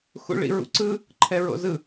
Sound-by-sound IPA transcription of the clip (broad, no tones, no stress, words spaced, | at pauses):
xṵɭḭɹṵǀɯ | ǃʰɛɹo̰zɯ